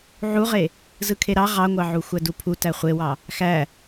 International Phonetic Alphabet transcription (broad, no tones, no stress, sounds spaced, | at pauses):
ʕ u ʁ e | z ɯ kʰ e ɾ ɑ ʁ ɑ ŋʷ ɑ ʕ u xʷ æ d u pʰ u t æ χʷ e w ɑ | x æ